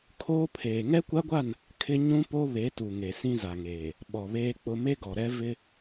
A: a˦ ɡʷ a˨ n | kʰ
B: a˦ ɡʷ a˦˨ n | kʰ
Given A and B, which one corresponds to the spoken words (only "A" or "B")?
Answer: B